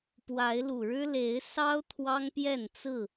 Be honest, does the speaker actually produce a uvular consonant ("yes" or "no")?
no